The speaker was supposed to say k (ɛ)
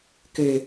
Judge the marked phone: incorrect: ø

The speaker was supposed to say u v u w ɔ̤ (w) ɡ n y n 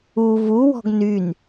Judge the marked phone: incorrect: none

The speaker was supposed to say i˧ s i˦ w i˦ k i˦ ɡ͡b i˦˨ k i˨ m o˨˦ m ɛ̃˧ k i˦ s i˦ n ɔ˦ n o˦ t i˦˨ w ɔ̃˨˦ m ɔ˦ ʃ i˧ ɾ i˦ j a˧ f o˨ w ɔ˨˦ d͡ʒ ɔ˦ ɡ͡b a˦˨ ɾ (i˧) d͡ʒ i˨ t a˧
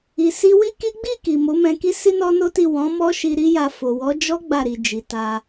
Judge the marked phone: incorrect: i˨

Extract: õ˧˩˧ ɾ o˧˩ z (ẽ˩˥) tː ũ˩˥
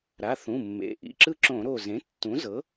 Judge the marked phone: correct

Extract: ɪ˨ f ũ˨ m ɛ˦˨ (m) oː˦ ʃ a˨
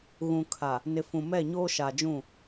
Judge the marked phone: incorrect: ɲ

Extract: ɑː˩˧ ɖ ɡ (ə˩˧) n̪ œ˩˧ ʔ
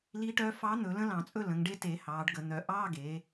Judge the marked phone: correct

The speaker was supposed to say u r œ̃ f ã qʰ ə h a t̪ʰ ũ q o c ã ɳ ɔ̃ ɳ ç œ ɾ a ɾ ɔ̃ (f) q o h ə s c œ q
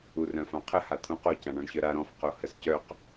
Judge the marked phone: correct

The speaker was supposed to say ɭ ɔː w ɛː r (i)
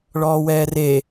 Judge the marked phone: incorrect: e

